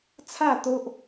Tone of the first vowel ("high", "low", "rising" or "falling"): falling